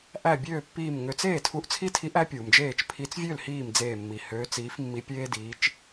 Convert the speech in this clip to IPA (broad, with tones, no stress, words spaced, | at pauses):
ʔæ˧˩bʲøː˧˩ pːiː˧˩mŋø˨˦t͡s eː˥˩tʰu˧˩ʔ t͡sʰi˦tʰi˨˦ʔ æ˨˦pʲuː˩md͡ʒeː˧˩t͡ʃ pʰi˨˦t͡svʲø˥˩l hiː˥˩md͡zeː˧˩mːi˩ høː˨˦t͡siː˨˦f mːi˨˦pʲeː˦diː˨˦t͡ʃ